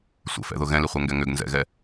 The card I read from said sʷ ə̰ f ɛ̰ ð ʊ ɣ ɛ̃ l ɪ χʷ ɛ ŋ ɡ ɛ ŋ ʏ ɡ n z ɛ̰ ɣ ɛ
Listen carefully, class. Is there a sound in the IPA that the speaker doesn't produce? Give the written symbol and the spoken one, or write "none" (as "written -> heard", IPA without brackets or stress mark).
none